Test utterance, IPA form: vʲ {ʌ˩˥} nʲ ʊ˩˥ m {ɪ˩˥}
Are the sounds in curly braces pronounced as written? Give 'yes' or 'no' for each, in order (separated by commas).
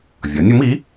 yes, no